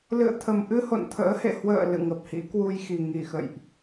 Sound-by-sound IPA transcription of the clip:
l ɨ̰˧˨ ə̯ t̪ʰ ə˨˩ m ʔ ɨ˧ h o̰˧˨ n t̪ʰ ə̰ː˧˥ h ḛ˧˨ h w ə̰ː˧˨ l ɨ̰˧˨ ŋ ə˨˩ p̚ h ḭ˧˥ k w u˧ j x i˨˩ ŋ i˧˩ x ə̰˧˨ j ʔ

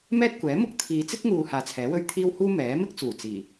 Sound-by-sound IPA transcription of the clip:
m ɛː˥ t̚ kʷ ɛː˨˥ m ʊ˥ k̚ t̪ʰ iː˨˧ t͡s ɪ˥ k̚ ŋ uː˨ h aː˨ t͡sʰ ɛː˨˥ w ɵ˥ ɥ t̪ʰ iː˥ w h uː˥ m ɛː˨˥ m ɪ˥ k̚ t͡s uː˨˩ t͡s iː˨˩

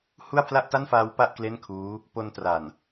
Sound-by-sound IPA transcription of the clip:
h u˥˩ a̯ pʰ l a˥˩ ʔ t a˥˩ n f aː˦˥ w p a˥˩ ʔ k l e˥˩ n kʰ uː˦˥ | p o˧ n t r a˨˩ n

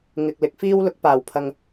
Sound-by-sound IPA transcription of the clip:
ŋ ɪ˨ k̚ l ɪ˨ k̚ f iː˥ w l ʊ˨˥ k̚ p aː˨˩ w pʰ ɐ˨ ŋ

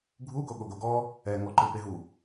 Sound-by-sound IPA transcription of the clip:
ɡʱ u ɡ o ɠ o ɡ o ɡ ɔ | ɛ ŋ ɔ ǃ ɯ p e ɦ u

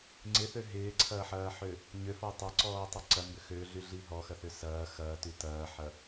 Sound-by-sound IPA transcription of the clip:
ŋ͡ǀ ɪ θ ø ɦ ɪː ǀʰ ɐː ħ ɐː ħ ø | ɲ ø f ɔ tˤ ɐ ǀ ɔː tˤ ø ǀ ɐ m b ʏ x ø ɮ y ɮ i ɦ ɔ x ɐ θ ʏ s ɐː x ɐː t y t ɐː ħ ɐ

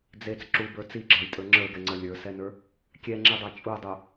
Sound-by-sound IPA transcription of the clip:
d͡z e t͡s ǁ u b ə˞ t͡s i ɡ͡ǁ ɑ j tʼ ə˞ ŋ͡ǁ ə˞ ɡ ɛ ŋ͡ǀ ə lʲ ə˞ s ɛ n ə˞ | kʲ ɛ ŋ͡ǁ i dˤ ɑ t͡ʃʼ u dˤ u

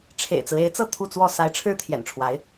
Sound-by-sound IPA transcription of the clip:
ʈ͡ʂʰ ḛ˨˩ ɪ̯ t͡s ɹ̩˦ e˧˥ ɪ̯ t͡s ɤ˥˧ t̪ʰ u˥˧ t͡s w ɔ˥˩ s a˧˥ ɪ̯ ʈ͡ʂʰ ɻ̩˥ t̪ʰ j ɛ̰˨˩ n ʈ͡ʂʰ w a˧˥ ɪ̯

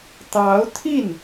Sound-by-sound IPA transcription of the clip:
t̪ ɑ˧˥ ʊ̯ t̪ʰ i˥˩ n

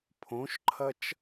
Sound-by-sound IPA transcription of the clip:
pʰ õ ʃ ǃʰ ɐ t͡ʃ

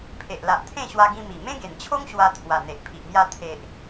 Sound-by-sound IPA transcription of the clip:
pʰ e˨ ʔ l a˨ ʔ t̪ʰ ẽ˥˧ ɕ w a˧ ɡ ĩ˧ m i˨˩ m ẽ˦ ɡ e˨˩ n t͡ɕʰ o˦ ŋ ɕ w a˧ t̪ʰ w a˨˩ n̪ e˨ ʔ pʰ i˨ ʔ m j a˧ t̪ʰ e˨ ʔ

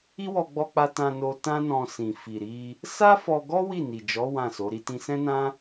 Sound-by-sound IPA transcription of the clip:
i˦ w ɔ˧ ɡ͡b ɔ˧ k͡p a˧ t ã˧ n o˧ t ã˦ n ɔ̃˧ s ĩ˨ f i˨ ɾ i˧ | s a˦ f ɔ˧ ɡ ɔ˦ w i˦˨ n i˨ d͡ʒ ɔ˨˦ w ã˦˨ s o˨˦ ɾ i˦ t ĩ˧ s ɛ̃˦ n ã˦

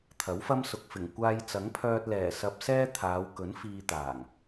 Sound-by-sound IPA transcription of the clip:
t̪ʰ ɐ˨˥ w f ɐ˥ m s ʊ˨ k̚ f ɪ˨˩ ŋ kʷ aː˧ j t͡s ɐ˨˥ ŋ pʰ œː˧ t̚ l ɛː˨˩ s ɐ˧ p̚ s ɛː˥ t̪ʰ aː˨˧ w k ɵ˨˥ n f iː˧ t̪ aː˨˩ ŋ

